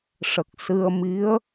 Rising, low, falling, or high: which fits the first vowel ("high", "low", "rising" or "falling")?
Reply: low